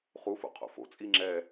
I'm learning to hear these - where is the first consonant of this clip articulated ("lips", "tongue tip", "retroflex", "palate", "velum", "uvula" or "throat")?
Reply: uvula